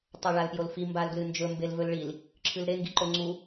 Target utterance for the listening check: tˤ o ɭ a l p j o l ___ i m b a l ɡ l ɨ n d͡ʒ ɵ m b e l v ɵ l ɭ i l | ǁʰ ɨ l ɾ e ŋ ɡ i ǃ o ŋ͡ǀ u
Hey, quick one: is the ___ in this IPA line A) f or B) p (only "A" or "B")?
A